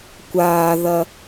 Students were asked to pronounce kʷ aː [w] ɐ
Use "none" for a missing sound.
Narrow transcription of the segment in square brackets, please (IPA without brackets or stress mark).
ð